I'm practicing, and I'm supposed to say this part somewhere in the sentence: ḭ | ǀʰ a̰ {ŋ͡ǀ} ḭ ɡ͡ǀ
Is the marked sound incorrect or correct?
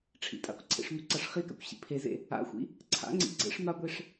correct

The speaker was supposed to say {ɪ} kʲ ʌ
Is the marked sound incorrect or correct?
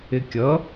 correct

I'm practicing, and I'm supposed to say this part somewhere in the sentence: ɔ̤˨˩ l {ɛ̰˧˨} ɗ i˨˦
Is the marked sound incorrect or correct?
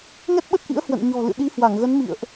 incorrect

